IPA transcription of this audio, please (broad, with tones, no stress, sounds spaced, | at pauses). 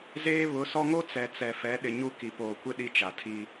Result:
z eː˦ β ʊ˨˦ s ɔ˦ ŋ o˦ t͡s ɛ˨ t͡s ɛ˨ f ɛ˨˦ ɗ ɪ˨ ɲ u˦ k i˨ p oː˨ kʷ ɪ˦ ɗ i˦ t͡ʃ a˨ tʰ i˦